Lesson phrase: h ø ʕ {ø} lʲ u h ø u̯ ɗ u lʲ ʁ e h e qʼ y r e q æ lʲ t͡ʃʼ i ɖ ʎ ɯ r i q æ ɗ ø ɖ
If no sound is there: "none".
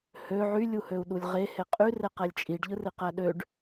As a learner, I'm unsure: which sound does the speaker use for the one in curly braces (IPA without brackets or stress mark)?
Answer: y